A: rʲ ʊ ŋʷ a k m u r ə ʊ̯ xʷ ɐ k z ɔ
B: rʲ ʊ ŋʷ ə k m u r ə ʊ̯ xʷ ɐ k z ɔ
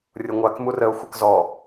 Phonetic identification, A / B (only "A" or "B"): A